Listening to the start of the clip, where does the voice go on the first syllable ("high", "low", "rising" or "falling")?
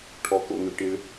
low